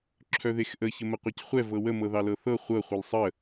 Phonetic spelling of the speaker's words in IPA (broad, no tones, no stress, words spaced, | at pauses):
ǁʰœðexʔə çəməqʷecχʷɛ vɤwə mɤðɑlɤθɤ χʷɤ χʷɤlsˤə